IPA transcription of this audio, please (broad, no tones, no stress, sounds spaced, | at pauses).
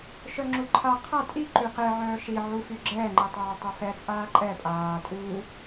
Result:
ʃ œ ŋ͡ǁ u ǃʰ a qʰ a tʼ i ǃ y q e ʕ œː ʃ i ʕ u f y ɡ͡ǁ ɛː ŋ͡ǃ i tˤ œː tˤ o f ɛ t͡sʼ aː ǃʼ ɛ pʼ aː tʼ u